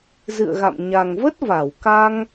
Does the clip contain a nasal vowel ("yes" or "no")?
no